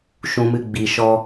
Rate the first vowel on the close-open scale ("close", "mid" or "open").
close